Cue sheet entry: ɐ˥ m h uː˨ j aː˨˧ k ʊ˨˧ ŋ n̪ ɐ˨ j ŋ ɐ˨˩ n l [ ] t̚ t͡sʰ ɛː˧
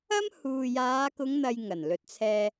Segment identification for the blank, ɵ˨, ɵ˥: ɵ˨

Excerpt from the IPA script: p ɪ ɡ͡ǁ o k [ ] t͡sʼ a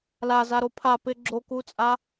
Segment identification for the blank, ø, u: u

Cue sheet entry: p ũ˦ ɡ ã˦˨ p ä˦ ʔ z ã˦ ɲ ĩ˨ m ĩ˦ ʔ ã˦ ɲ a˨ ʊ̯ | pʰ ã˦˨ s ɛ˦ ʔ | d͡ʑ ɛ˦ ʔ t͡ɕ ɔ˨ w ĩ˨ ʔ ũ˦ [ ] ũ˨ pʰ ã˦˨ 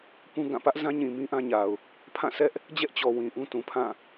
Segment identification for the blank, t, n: t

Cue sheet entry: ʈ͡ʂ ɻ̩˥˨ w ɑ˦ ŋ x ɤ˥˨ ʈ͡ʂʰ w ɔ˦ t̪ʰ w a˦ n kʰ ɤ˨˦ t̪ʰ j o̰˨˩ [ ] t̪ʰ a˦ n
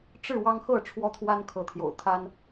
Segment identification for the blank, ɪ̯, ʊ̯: ʊ̯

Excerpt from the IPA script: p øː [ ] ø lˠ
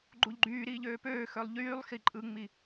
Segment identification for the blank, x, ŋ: x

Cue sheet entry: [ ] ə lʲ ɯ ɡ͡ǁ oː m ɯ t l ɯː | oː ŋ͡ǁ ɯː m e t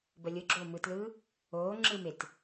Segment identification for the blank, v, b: b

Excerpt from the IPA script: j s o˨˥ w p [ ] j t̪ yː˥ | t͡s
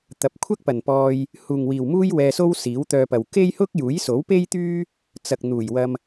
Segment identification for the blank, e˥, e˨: e˥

